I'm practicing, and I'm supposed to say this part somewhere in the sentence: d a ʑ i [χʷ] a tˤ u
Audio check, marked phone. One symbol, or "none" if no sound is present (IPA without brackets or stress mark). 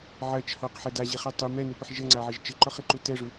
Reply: χ